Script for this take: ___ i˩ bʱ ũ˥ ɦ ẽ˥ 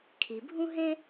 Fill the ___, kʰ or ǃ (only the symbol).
kʰ